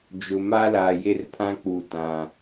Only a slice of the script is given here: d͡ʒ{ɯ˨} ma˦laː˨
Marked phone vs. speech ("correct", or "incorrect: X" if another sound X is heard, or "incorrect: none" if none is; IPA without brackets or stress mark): incorrect: ʊ˨